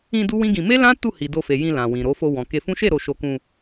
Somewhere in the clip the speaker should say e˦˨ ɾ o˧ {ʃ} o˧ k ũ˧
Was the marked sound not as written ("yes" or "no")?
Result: no